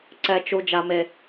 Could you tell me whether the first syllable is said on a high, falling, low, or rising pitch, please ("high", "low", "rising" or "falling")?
high